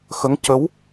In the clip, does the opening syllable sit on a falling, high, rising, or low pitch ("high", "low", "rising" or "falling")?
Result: rising